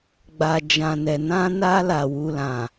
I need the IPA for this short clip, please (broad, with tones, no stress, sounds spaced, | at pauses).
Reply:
ɡ͡b a˨ d͡ʒ ã˨ n ɛ˨ n ã˧ n a˧ l a˨ w u˧ l ã˨